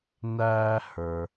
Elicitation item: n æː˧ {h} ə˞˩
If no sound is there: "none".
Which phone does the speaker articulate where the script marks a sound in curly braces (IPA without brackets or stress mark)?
h